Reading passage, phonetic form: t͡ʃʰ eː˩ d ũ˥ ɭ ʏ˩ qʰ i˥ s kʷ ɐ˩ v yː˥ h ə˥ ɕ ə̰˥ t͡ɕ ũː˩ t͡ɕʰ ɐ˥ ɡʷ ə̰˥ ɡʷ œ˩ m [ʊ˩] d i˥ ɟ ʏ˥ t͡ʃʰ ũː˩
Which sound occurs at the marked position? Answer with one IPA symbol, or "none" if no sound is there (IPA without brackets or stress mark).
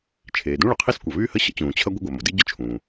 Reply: ʊ˩